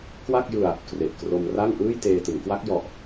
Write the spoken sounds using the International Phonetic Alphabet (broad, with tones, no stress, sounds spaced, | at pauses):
k w a˥˩ k̚ j ɯ˧ a̯ | k r e˨˩ ʔ k r o˧ m r a˥˩ ŋ ʔ ɯː˥˩ j t eː˧ t ɯ˩˦ ŋ k w a˦˥ k̚ j ɔ˨˩ ʔ